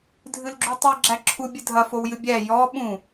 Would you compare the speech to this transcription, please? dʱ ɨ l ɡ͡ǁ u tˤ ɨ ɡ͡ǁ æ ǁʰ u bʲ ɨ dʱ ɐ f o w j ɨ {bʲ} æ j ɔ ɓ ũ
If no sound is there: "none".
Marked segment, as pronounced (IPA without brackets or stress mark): bʲ